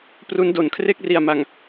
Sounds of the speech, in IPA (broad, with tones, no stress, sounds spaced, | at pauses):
p r u˦˥ n d o˩˦ n kʰ r e˥˩ k̚ r i˨˩ a̯ m a˨˩ ŋ